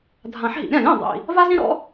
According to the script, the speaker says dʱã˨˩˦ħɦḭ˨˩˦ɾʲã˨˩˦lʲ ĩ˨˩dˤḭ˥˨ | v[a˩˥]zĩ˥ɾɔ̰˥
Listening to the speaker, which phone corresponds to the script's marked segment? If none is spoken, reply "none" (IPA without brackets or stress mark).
a˥